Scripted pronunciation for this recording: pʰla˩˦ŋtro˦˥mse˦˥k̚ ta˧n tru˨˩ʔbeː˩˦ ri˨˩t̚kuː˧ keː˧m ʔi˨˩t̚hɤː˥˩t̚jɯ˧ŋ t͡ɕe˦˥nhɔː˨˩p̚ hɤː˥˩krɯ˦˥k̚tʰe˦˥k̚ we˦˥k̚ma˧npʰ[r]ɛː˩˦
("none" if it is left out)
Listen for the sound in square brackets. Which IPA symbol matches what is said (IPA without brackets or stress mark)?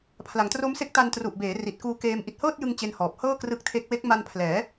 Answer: l